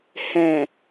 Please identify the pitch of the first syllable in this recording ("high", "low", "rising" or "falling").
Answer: low